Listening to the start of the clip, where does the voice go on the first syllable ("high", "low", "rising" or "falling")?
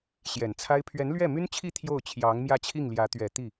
low